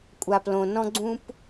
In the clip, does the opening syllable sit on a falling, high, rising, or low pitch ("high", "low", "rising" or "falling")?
low